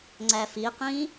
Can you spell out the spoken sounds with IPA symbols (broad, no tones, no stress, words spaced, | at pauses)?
ŋ͡ǀæfiqĩ